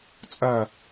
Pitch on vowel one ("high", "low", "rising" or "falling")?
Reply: falling